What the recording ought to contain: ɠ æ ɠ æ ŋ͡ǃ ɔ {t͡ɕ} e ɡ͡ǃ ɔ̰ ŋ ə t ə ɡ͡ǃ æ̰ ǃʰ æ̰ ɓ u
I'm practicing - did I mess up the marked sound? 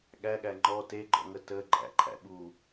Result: yes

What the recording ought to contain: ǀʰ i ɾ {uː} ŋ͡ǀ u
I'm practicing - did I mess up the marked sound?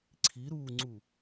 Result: no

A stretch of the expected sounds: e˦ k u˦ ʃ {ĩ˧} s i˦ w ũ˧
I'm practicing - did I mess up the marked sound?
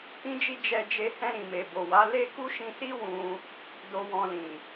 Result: no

